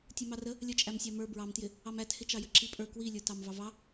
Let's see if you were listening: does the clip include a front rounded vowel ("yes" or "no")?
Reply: no